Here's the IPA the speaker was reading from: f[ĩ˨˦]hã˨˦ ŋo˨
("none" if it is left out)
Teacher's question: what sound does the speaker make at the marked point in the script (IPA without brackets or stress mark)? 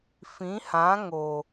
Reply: ĩ˨˦